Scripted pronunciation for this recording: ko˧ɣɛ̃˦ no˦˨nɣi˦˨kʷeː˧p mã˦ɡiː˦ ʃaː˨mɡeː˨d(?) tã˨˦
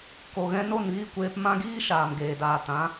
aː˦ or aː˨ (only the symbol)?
aː˨